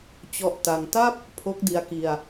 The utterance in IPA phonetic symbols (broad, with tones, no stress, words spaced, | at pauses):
t͡ɕɔ˦˥ʔta˧ŋ ta˥˩p̚ | pʰo˦˥k̚di˧a̯ki˧a̯